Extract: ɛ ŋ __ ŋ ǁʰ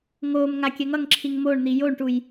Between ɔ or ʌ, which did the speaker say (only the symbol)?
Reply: ʌ